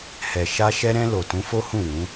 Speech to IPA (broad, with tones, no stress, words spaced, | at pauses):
hɛ˨ ʃa˧ʃɛ˧ɾɛ̃˧ lo˨tũ˨˦fo˦ hũ˦˨wũ˨˦